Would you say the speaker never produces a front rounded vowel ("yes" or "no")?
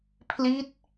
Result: yes